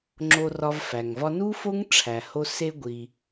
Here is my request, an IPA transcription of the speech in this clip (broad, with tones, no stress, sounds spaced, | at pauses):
ŋ͡ǁ o˧ r ɒ˧ v f æ˩ ŋ v ɒ˥ n u˥ f o˥ ŋ ʈ͡ʂʰ æ˩ h o˧ s e˧ ɡʷ i˩